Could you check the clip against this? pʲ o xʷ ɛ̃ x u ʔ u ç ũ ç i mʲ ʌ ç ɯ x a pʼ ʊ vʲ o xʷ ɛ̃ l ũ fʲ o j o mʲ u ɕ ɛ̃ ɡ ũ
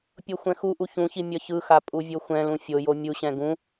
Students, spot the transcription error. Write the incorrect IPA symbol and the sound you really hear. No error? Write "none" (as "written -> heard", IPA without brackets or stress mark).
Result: ʊ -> u